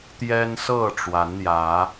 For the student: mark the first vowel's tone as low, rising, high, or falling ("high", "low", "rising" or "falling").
high